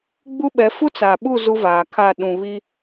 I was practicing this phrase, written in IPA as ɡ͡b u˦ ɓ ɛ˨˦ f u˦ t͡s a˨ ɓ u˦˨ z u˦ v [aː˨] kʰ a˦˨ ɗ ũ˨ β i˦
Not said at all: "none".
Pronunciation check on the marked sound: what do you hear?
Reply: aː˨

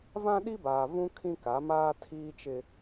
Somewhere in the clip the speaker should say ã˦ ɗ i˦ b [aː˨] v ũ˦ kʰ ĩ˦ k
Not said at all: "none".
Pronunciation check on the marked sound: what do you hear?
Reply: aː˨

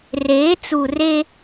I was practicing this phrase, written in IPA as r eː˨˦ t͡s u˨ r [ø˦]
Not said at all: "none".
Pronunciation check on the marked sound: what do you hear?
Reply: e˦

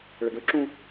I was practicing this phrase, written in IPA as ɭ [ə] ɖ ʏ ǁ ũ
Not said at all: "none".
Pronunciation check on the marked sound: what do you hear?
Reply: ə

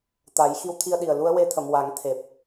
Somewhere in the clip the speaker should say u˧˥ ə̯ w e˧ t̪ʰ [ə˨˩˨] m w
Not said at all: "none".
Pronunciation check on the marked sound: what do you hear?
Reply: ə˨˩˨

